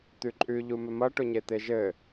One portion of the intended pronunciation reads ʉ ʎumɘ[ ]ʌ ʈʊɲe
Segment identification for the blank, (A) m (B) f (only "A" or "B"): A